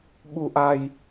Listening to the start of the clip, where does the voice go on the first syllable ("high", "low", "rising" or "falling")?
low